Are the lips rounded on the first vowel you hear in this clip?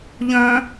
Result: yes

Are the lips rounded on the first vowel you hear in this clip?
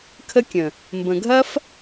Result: no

